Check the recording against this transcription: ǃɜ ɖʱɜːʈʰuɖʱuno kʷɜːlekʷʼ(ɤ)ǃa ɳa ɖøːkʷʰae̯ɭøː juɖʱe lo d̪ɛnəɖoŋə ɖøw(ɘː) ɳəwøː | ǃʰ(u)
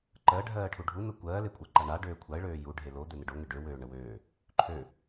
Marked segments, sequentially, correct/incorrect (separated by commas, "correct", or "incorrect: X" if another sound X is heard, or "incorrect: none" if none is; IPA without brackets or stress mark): correct, incorrect: øː, incorrect: ø